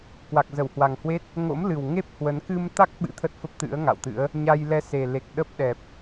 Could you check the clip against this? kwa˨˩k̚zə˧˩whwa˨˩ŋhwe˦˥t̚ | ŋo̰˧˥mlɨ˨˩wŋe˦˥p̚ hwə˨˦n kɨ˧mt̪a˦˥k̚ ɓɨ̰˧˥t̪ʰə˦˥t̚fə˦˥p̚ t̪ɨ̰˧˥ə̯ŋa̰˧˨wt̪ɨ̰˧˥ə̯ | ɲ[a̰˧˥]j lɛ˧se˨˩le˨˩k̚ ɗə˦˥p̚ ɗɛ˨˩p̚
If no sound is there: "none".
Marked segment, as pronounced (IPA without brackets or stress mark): a˧